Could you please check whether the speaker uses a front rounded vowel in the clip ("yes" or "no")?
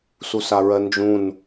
no